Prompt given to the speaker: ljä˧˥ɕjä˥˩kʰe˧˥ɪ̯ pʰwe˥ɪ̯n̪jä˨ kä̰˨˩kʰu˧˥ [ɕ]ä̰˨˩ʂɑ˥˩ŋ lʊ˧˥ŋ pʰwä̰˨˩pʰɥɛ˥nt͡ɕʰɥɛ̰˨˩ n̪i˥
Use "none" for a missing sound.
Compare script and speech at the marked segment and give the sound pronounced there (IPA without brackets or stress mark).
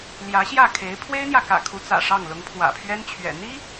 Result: t͡s